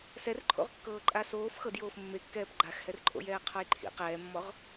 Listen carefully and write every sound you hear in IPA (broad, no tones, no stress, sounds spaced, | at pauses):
s ɛ r ǃʰ o̰ ʁ kː ɤː ǃʼ a s oː f x ɤ d j oː f mː e kː ɛː p ɡ͡ǃ a x h ɛ r ǃʼ o̰ j ɛː qʰ ɔ j ǃʰ ḭ q ɛː mː ɔ ʁ